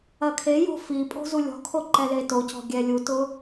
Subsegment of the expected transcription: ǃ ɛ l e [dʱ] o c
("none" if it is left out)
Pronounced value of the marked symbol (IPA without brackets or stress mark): t